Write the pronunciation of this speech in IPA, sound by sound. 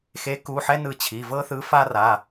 x e˨˥ k u˩˧˩ ħ ɛ˦ n ɯ˧˩ t͡ɕʰ i˩˧˩ v ɤ˦ θ ɯ˨˥ f a˦ r a˩˧˩

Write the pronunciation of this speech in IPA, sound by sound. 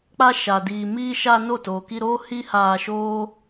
k͡p a˧ ʃ a˨ d iː˨ m iː˧ ʃ a˧ n o˦˨ t oː˨ k i˧ ɾ oː˦ h iː˦ h aː˧ ʃ oː˦

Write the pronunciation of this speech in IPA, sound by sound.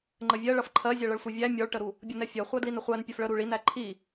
ŋ͡ǃ ə vʲ ɜ ɭ ʌ f ǃʰ ɜ zʲ ɛ ɭ ʌ ɭ sʷ ɛ vʲ æ mʲ ɔ ɭ ʈ ə ɾ u | bʲ ʌ n ɛ fʲ ɜ χʷ æ d l i n ə χʷ æ n pʲ ɜ f ɭ ə ɾ u ɭ i n æ ǃʰ i

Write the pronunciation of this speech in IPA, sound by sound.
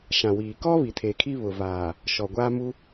ʃ ã˨ w iː˨ k ɔ˦ β i˨ tʰ e˨ kʰ i˦ β ʊ˨ v aː˨ | ʃ ɔ˨ ɡʷ a˦ m u˦

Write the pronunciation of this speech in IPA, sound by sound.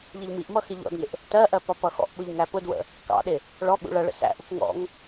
ʎ i ʎ m i ʔ m ʌ x ɪ ʎ ɔ̰ d ŋ ɪ ʔ | t ɜ ʔ ɜ p ɒ p ʌ x ɔ̰ ʔ ɓ ʊ ʎ ŋ æ p ʊ d w ə̰ | k ɑ̰ ɗ ɪ | ɭ ɔ ɠ ṵ ɭ ʌ ɭ ə̰ s æ̰ ʔ u k ŋ ɔ̰ ŋ

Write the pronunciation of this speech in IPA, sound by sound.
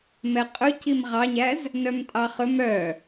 m ɛ qʼ ɵ c i m ʁ ɑ ɲ æ z | n œ m tʼ ɑ χ ɵ m œ

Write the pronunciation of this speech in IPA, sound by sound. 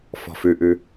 f ɔ̤ f ʉ ʔ ʉ

